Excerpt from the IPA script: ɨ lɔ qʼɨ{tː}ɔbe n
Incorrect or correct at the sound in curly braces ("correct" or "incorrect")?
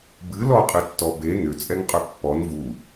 correct